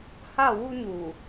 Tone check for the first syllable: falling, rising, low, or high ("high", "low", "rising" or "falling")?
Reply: falling